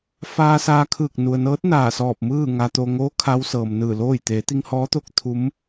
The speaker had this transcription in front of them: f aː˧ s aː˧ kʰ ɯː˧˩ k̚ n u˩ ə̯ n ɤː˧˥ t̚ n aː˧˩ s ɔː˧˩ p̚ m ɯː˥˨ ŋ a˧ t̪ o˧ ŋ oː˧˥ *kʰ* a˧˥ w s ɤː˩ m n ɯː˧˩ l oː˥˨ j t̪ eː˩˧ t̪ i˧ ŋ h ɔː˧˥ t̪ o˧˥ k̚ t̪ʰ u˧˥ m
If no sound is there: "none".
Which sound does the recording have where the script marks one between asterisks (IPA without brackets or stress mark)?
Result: kʰ